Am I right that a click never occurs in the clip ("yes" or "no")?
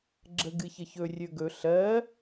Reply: no